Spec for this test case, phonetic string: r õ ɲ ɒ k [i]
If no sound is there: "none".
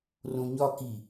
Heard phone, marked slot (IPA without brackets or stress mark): i